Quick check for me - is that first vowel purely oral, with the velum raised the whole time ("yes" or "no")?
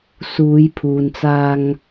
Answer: yes